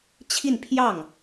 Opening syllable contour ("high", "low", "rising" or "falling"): falling